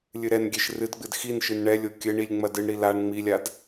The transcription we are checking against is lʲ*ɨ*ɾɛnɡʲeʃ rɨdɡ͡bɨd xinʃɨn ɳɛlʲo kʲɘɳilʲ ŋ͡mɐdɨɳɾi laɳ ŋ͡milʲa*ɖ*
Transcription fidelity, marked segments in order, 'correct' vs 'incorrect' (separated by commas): correct, incorrect